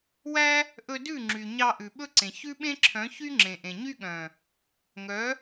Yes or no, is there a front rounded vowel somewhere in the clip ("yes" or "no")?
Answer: yes